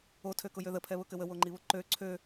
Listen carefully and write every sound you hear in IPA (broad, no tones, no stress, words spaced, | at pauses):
otʰøkʊjø ðəpʰɛβʊkɘ wəwoŋ͡ǃiβʊ ǃø ǀʰø